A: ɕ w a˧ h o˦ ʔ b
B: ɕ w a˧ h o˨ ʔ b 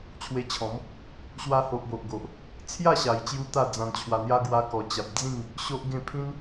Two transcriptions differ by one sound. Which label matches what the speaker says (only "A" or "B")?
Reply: B